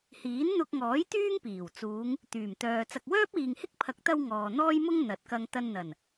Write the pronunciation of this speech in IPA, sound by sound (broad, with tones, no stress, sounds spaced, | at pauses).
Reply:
h iː˨˥ n n̪ ʊ˧ k̚ ŋ ɔː˨˥ j t̪ yː˥ ŋ p iː˨˩ w t͡s uː˨˧ ŋ | t̪ yː˨˩ m t̪ œː˨ t͡s ɐ˨ k̚ w œː˥ p̚ iː˨ ŋ h ɪ˥ k̚ pʰ ɐ˨˥ k̚ t̪ ɐ˧ w ŋ ɔː˨ n̪ ɔː˥ j m ʊ˥ ŋ n̪ ɐ˨˥ t̚ k ɐ˧ ŋ t̪ ɐ˧ n n̪ ɐ˨˩ n